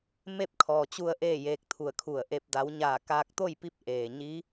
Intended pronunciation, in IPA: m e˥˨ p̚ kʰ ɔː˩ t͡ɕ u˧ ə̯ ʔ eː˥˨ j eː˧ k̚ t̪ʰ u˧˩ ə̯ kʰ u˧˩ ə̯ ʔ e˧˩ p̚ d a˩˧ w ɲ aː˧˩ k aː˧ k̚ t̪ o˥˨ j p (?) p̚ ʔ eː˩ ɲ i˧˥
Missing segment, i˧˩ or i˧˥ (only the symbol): i˧˥